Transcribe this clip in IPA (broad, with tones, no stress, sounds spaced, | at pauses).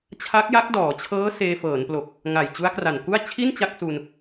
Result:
t͡ɕʰ a˦˥ k̚ j a˦˥ k̚ d ɔː˩˦ t͡ɕʰ ɤː˦˥ s eː˧ f ɤː˩˦ n p l o˨˩ k̚ | ŋ a˨˩ j t͡ɕ u˦˥ a̯ k r a˨˩ n k u˥˩ a̯ t͡ɕʰ i˥˩ n t͡ɕ a˥˩ k̚ s u˧ n